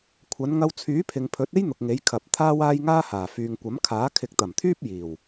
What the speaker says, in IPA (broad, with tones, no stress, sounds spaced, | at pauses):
kʷʰ ɐ˨˧ n ŋ ɐ˧ w t͡sʰ yː˨˥ pʰ ɪ˨ ŋ pʰ ɵ˨˥ t̚ e˥ j n̪ ʊ˨ k̚ ŋ e˨˧ j kʰ ɐ˨ p̚ t̪ʰ aː˧ w aː˧ j ŋ aː˥ h aː˨˩ f yː˨ ŋ kʷ ɐ˨˥ m kʰ aː˨˥ kʰ ɪ˨˥ k̚ t̪ ɐ˨˩ m t̪ʰ yː˥ p̚ j iː˨˩ w